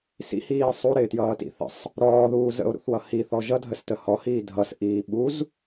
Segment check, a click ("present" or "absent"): absent